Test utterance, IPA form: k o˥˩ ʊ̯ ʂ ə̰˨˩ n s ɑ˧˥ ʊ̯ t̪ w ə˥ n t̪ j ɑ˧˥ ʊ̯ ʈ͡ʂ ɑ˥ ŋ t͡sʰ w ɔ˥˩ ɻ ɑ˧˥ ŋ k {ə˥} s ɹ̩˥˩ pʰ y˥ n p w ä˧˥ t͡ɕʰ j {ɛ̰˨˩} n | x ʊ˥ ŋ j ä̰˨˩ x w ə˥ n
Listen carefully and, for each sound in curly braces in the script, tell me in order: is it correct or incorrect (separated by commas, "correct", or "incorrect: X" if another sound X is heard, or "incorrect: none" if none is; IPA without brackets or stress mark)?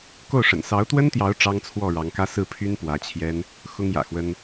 incorrect: ä˥, incorrect: ɛ˥